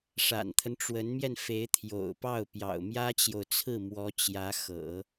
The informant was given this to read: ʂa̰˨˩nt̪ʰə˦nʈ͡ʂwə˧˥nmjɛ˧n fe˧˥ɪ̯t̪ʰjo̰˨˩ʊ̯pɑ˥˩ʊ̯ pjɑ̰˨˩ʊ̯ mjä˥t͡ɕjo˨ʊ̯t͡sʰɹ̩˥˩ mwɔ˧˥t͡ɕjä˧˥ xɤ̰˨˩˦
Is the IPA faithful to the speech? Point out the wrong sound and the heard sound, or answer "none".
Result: none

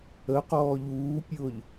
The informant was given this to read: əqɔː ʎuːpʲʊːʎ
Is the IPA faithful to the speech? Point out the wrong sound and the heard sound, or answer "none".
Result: none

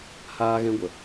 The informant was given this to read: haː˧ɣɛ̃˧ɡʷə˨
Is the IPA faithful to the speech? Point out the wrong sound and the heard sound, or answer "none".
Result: none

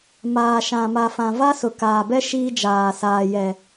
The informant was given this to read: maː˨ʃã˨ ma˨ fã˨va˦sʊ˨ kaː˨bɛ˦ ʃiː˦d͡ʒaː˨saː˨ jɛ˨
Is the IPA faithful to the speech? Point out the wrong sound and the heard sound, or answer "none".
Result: none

